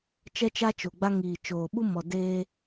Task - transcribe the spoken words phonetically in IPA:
t͡ʃɛ˦t͡ʃa˦t͡ʃo˨ɡ͡ba˦ ŋiː˨t͡ʃoː˨ ɓu˦mɔ˨ deː˦

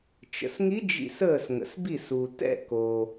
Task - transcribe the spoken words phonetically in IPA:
t͡ʃə̰˩sŋi˧˥ d͡ʒḭ˧˩s əː˧˩sŋə̰˩sbi˧˩s u˩tɛ̰˧˩koː˩

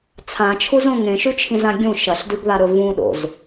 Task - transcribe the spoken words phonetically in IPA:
t͡sʰãt͡ʃʰuzõ ŋẽʃʉt͡ʃʰĩzã ɡʲũ ʃɐɬdʉɡðaɾɵ vũɗo̰z

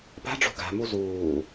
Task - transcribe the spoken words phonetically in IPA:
pa̤ɖ͡ʐo̤ ɡa̤mu zuː

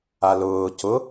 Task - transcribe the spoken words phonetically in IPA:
alʊː cʊ

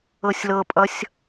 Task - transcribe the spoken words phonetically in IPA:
ɤsʲlɤpʼʌsʲ

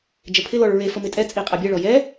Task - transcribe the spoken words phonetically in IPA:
d͡ʒəpʰɪlɔɭ ɹefə mɪtʼɛt͡sʼi qʼabʲɛɭɔ jɛ

